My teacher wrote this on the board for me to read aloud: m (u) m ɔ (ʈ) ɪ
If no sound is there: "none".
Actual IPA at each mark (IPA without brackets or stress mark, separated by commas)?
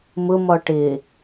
ʊ, ʈ